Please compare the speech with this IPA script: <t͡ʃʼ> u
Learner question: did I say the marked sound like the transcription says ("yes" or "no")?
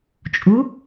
yes